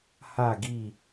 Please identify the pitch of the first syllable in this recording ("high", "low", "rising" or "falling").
falling